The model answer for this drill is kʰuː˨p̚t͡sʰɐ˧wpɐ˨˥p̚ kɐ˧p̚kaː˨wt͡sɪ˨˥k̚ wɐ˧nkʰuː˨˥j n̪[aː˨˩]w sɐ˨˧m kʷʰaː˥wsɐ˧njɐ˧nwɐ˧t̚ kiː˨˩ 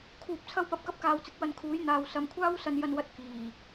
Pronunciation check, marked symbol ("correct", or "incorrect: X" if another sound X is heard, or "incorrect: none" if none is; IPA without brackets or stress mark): incorrect: aː˨